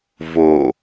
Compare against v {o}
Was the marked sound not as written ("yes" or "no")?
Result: no